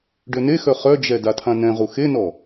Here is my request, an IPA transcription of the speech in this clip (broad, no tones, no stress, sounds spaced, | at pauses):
ɖ ø n e x œ χ œ d͡ʒ ɛ d a tʰ ã n ɛ̃ ʁ u x e n ɔ